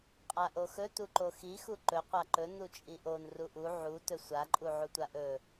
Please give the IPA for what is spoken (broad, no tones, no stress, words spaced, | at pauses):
qʼaʔoxɵ tuǃoxi xuǃɵ qʷaǃɵ nut͡ʃʼiʔon ruʔu ʕu tɵsʷa ǃʼuʕutʷaʔɵ